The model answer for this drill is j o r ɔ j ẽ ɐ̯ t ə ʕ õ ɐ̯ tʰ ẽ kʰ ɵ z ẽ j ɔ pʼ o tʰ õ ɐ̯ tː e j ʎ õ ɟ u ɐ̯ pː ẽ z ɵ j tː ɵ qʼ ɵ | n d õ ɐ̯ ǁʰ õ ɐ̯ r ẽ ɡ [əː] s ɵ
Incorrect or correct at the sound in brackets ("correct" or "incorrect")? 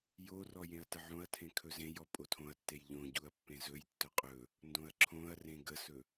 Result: incorrect